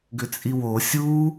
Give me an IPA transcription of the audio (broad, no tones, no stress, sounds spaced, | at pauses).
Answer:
ɡ ʏ t͡sʼ i w o sʲ u